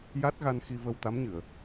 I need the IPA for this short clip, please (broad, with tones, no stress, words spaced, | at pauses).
ja˦˥t̚ɣa˧n xi˧və˧wt̪a˧˥mɲɨ˨˩˨ə̯